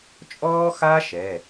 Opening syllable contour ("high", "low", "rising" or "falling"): high